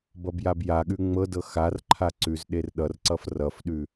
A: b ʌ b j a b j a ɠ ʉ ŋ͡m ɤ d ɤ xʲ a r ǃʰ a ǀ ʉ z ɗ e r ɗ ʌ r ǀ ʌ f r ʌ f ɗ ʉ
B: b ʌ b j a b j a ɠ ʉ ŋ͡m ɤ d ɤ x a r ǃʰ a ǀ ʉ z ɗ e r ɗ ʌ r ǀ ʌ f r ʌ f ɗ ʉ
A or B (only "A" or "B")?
B